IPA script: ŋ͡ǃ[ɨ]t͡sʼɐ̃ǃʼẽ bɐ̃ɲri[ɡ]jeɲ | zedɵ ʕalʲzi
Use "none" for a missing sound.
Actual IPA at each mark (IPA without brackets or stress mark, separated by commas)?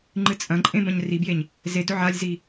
ɨ, b